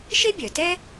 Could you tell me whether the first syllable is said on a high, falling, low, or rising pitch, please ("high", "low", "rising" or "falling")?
high